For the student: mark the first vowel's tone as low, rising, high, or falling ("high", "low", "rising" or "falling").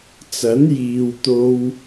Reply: rising